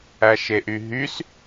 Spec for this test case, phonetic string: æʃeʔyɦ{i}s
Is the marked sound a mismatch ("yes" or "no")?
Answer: yes